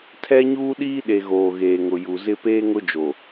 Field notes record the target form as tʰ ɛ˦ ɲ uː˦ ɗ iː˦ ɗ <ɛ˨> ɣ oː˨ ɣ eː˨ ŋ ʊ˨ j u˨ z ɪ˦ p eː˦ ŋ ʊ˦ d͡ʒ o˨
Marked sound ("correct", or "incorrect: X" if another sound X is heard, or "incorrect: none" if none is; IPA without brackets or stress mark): incorrect: e˨